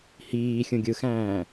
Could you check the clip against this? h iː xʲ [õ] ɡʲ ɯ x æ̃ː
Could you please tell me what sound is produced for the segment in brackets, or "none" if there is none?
ũ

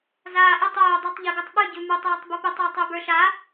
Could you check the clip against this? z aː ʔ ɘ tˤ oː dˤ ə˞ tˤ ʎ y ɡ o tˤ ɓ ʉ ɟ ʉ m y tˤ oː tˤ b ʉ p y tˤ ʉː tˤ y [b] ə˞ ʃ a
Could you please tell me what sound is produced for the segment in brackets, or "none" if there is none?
b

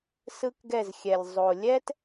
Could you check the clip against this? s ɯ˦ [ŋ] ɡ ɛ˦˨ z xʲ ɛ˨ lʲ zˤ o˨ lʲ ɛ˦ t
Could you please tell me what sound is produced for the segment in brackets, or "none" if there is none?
k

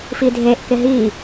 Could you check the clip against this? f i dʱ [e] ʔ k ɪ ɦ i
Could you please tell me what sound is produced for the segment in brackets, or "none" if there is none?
e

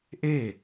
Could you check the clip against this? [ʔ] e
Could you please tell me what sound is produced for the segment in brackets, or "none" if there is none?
ʔ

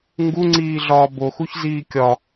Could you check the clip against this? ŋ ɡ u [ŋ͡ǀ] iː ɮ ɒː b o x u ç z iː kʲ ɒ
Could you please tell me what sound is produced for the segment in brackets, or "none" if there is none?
ŋ͡ǀ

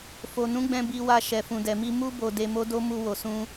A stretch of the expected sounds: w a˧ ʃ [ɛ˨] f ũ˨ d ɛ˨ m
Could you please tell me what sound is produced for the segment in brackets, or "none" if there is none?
ɛ˨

